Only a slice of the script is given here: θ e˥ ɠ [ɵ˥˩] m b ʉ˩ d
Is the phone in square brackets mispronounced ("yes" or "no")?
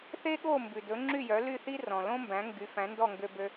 yes